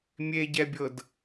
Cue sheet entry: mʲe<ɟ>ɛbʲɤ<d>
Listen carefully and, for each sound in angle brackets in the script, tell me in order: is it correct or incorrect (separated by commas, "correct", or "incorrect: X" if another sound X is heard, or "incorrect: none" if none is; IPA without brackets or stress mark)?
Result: correct, correct